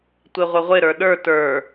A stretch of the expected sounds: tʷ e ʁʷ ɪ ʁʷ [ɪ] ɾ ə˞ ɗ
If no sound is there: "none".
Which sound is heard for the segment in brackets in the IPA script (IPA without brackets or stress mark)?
ɪ